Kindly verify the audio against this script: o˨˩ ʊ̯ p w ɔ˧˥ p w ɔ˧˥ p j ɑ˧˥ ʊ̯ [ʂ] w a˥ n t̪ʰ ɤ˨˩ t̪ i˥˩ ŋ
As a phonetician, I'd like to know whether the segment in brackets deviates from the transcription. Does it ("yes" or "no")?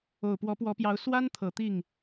yes